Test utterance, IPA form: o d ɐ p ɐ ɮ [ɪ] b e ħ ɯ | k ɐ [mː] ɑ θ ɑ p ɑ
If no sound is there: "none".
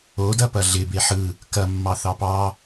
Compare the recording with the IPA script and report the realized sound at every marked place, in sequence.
ɪ, mː

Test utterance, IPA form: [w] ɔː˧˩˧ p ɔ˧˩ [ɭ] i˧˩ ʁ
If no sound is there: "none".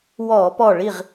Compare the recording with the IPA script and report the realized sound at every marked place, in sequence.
w, ɭ

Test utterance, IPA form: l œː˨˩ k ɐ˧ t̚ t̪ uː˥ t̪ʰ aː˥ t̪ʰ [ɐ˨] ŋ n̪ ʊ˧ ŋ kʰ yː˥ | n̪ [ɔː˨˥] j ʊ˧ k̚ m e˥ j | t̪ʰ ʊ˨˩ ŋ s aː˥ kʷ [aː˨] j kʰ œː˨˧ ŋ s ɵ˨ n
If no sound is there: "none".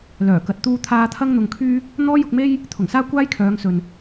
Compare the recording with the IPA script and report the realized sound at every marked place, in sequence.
ɐ˥, ɔː˥, aː˥

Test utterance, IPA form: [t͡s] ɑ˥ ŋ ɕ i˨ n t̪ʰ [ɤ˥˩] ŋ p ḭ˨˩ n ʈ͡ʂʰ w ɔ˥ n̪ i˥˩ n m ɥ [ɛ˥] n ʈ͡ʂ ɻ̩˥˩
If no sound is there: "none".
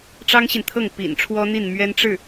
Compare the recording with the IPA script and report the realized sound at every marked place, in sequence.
ʈ͡ʂ, ɤ˥˩, ɛ˥

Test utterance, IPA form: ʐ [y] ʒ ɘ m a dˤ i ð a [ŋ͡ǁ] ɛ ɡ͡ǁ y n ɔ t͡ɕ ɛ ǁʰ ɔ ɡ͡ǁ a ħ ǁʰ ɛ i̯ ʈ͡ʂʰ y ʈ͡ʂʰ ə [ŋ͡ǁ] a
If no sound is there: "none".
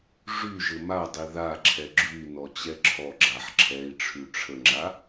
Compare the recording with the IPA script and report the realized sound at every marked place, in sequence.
y, ǁʰ, ŋ͡ǁ

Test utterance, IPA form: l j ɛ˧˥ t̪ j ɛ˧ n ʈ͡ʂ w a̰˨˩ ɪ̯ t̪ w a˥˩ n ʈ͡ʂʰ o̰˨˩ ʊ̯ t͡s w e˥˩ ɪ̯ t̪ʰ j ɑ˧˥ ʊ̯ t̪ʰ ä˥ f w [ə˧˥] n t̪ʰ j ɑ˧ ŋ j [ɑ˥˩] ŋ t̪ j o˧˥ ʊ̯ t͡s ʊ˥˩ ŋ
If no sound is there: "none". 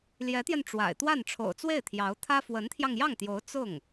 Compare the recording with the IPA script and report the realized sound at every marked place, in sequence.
ə˧˥, ɑ˥˩

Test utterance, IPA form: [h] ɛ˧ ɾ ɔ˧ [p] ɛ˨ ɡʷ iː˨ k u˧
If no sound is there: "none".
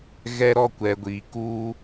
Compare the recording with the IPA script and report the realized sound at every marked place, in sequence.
ɣ, kʷ

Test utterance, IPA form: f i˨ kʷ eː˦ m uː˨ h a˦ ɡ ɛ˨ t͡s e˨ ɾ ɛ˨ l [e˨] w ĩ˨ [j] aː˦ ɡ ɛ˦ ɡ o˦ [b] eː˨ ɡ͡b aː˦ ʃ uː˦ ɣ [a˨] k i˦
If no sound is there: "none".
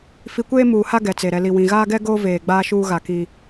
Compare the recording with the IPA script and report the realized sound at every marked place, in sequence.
i˨, ɣ, v, a˨

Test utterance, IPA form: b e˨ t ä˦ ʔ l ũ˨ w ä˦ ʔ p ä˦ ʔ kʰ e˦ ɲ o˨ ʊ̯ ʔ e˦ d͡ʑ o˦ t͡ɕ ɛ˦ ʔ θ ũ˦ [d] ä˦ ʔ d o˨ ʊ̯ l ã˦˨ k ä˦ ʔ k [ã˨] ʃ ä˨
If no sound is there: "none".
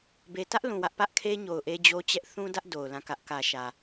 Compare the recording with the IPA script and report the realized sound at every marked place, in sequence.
d, ä˨

